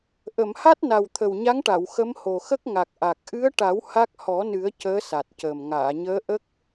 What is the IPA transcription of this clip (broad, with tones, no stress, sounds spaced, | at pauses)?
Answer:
ʔ ə˨˩˨ m h a˦˥ t̚ n a˨˩ w t̪ʰ ə˨˩ w ɲ a˧˥ ŋ ʈ a˨˩˨ w x ə˧˥ m h o˨˩ x ə˦˥ k̚ ŋ a˨˩ k̚ ʔ a˨˩ k̚ ʔ ɨ˧˥ ə̯ ʈ a˨˩˦ w h a˦˥ k̚ h ɔ˨˩˦ n ɨ˨˩˦ ə̯ c əː˧˥ s a˨˩ t̚ c əː˨˩ m ŋ aː˨˩˨ ɲ əː˧˥ ʔ ə˦˥ k̚